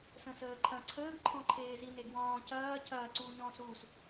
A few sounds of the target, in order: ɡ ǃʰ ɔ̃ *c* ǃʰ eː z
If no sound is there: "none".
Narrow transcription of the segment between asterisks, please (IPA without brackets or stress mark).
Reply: none